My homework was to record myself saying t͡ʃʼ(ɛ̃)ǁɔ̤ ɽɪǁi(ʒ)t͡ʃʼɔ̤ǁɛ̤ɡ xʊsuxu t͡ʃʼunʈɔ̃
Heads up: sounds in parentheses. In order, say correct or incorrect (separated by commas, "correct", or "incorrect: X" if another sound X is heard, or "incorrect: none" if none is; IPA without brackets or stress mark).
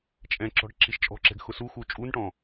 correct, incorrect: ʃ